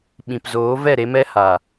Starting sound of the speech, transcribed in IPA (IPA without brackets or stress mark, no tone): ɓ